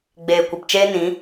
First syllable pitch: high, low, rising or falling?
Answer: low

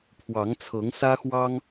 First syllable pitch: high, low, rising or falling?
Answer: rising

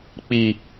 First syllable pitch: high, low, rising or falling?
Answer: low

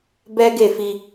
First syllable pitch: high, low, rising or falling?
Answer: high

